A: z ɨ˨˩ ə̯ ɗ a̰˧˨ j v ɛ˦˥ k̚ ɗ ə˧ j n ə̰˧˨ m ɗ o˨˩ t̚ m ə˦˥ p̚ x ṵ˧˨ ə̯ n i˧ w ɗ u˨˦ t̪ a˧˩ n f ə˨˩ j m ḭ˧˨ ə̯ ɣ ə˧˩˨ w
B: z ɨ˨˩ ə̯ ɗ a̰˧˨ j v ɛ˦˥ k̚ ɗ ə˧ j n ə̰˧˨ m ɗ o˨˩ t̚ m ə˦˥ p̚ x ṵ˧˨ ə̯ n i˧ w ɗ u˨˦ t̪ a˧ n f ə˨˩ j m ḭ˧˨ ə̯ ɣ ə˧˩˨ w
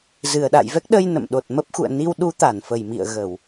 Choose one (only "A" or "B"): A